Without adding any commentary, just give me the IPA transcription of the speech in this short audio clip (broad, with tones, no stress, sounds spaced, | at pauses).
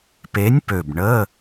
p e˨˥ nʲ p ø˨˩ b ɳ ə˧˥˧